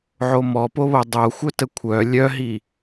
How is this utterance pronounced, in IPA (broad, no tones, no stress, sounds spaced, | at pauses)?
ʕ o m ɔ p o β o dˤ o xʷ œ t ə kʷʰ œ lʲ œ ɦ i